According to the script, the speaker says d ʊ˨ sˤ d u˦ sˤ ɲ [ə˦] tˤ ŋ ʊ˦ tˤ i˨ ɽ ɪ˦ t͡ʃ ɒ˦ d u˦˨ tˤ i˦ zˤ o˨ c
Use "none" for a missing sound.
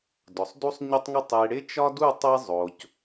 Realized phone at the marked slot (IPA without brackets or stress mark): ə˦